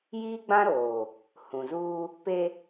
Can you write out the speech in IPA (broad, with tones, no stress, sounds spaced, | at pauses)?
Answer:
j iː˦ ɡ͡b ã˦ ɾ oː˨ | h ũ˨ z uː˦ | p e˦